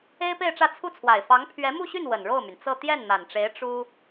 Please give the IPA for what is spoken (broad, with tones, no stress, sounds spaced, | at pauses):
e˥ ɪ̯ p e˥˧ ɪ̯ ʈ͡ʂ ä˥˧ t͡sʰ u˥˩ t͡sʰ w a˨˩ ɪ̯ f ɑ˧˥ ŋ pʰ ɥ ɛ˧˥ m u˥˧ ɕ y˥˩ n w ə˨˩ n ɻ o˥˩ ʊ̯ m y˩ n t͡s ɤ˥˧ t̪ j ɛ˥˩ n n̪ a˨˩ n ʈ͡ʂ e˧˥ ɪ̯ ʈ͡ʂ u˥